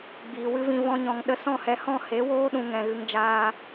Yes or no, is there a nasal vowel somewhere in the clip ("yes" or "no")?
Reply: yes